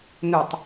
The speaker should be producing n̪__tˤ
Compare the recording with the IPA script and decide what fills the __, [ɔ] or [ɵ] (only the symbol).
ɵ